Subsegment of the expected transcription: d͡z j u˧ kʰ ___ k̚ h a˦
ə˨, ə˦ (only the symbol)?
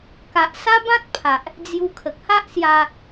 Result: ə˨